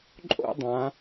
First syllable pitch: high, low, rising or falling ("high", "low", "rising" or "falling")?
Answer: high